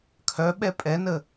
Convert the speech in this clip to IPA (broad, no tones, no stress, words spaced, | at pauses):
kʰœɓɛ pʼɛnə